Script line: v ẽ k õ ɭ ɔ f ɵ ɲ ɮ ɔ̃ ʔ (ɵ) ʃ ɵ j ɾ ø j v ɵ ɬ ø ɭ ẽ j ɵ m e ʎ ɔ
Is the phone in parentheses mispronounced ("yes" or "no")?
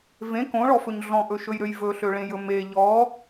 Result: no